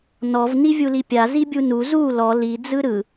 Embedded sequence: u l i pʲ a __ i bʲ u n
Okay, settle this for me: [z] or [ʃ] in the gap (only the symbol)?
z